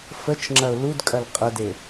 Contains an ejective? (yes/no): yes